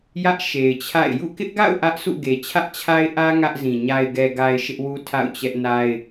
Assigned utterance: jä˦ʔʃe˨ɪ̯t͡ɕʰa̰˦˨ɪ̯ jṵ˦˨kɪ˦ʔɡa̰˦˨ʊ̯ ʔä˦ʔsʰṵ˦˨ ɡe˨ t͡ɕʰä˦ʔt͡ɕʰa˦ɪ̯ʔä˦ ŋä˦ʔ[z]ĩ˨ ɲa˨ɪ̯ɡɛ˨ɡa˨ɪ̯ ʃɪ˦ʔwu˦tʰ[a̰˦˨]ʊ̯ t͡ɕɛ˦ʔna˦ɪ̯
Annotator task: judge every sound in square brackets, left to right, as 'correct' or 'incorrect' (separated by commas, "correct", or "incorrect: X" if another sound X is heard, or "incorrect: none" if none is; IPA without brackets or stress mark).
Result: correct, correct